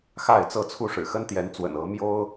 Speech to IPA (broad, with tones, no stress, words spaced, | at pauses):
xa˥˨ɪ̯t͡sɤ˥˨t͡sʰu˦ ʂɻ̩˨˩xə˦nt̪jɛ˨˦nt͡swə̰˨˩n ɤ˨˦ mjo˦ʊ̯